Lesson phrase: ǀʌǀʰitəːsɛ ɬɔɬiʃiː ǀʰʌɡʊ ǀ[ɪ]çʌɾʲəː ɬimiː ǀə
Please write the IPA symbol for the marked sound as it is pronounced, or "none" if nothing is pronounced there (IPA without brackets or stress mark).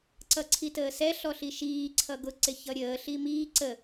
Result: ɪ